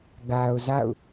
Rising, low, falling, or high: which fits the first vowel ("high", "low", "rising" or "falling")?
low